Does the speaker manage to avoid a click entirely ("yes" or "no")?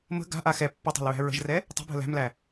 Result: yes